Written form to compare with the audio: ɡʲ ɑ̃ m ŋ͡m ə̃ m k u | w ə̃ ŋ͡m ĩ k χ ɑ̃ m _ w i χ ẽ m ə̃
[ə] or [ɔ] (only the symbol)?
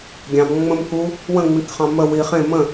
ə